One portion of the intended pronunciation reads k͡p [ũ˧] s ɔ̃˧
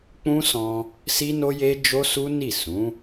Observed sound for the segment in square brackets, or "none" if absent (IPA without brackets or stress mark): ũ˦